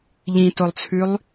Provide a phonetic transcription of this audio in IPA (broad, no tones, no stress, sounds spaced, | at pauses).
ʎ ĩ t o lˠ t͡sʰ ʉ lˠ